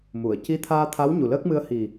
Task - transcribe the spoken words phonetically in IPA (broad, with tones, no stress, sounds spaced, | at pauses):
m u˨˩˨ ə̯ c i˧˥ t̪ʰ aː˧ t̪ʰ a˧˥ w ɲ u˨˩ l əː˦˥ k̚ m ɨ˧ ə̯ h i˨˩